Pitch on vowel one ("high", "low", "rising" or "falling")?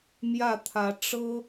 falling